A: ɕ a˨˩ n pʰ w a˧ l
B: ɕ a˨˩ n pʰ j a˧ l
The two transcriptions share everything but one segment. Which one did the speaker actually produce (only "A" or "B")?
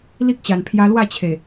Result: B